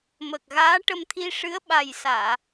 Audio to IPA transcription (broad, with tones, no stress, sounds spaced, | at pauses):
m ə˨˩ k̚ ɣ aː˧˥ ʈ ə˧ m t̪ʰ i˧ ʂ ɨ˧˥ ə̯ ɓ a˨˩ j s aː˨˩˨